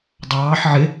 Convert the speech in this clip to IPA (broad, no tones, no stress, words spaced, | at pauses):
dˤɑːħ ʕɪ